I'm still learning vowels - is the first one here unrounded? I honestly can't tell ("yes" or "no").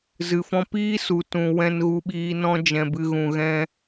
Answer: yes